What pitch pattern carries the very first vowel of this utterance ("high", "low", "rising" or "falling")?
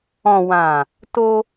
low